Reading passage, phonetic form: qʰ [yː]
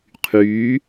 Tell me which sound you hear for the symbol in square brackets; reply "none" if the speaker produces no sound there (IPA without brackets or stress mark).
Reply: yː